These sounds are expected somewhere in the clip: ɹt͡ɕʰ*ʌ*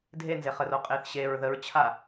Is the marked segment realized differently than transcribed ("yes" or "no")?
yes